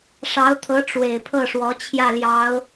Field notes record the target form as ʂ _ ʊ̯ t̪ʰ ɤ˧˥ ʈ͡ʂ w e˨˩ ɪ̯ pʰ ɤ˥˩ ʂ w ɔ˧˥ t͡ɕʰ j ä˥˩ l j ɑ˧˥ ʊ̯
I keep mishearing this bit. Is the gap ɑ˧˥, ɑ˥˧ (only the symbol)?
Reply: ɑ˧˥